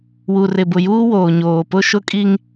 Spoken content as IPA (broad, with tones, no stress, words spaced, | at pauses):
wu˨rɪ˨bʊ˨juː˦ woː˨ɲoː˨pʊ˦ ʃʊ˦kʼi˦ŋ